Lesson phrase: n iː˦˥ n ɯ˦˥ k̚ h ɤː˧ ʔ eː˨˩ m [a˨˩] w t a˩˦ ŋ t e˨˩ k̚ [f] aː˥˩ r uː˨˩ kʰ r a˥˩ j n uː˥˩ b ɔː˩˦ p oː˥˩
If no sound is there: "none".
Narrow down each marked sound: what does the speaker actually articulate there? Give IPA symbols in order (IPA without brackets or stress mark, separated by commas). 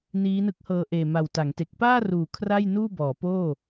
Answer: a˨˩, p